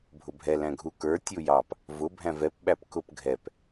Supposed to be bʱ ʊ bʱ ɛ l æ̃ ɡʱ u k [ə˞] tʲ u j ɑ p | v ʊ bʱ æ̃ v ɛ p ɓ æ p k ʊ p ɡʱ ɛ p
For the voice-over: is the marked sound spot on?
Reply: yes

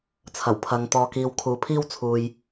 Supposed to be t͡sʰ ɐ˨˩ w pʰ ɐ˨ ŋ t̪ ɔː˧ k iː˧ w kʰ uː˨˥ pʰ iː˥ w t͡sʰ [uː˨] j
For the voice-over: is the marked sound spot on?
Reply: yes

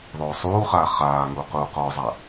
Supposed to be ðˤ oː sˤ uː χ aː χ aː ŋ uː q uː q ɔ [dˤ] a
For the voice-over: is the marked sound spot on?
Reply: no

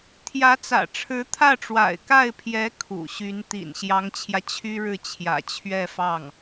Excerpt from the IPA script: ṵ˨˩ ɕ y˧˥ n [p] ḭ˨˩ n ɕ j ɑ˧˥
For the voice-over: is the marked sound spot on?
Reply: no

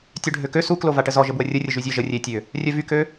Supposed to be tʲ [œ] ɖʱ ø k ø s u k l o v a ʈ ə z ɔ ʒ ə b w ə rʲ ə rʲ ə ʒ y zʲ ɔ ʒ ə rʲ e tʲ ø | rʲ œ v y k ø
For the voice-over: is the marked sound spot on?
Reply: yes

